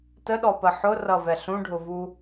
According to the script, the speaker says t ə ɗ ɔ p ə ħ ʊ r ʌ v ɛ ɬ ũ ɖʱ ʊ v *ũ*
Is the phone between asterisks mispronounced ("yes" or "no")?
yes